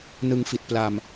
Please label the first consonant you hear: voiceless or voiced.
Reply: voiced